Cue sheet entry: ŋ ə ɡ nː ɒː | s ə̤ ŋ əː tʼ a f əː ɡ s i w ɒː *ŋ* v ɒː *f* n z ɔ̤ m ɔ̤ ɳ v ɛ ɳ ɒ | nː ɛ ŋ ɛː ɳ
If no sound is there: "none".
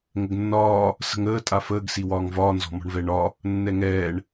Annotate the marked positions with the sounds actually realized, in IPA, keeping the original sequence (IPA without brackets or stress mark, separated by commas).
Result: ŋ, none